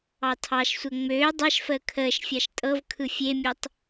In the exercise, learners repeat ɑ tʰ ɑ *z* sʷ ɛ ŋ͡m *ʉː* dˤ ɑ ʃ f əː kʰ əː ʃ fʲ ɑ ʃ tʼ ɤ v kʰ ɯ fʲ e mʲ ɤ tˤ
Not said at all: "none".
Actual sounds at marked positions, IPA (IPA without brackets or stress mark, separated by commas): ʃ, øː